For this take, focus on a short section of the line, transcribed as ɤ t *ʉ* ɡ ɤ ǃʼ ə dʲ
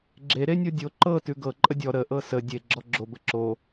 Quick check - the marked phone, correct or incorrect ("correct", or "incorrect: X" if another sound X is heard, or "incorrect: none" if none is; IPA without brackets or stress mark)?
correct